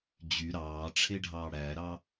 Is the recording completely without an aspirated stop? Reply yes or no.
no